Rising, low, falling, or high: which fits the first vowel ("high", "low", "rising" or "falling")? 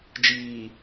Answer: low